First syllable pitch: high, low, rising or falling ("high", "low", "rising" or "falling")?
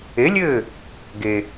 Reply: rising